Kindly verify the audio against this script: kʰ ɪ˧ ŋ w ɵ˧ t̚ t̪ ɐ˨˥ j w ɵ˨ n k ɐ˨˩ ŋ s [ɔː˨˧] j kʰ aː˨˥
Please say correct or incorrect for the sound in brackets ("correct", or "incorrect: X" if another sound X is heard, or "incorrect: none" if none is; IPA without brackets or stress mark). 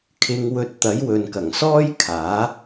incorrect: ɔː˥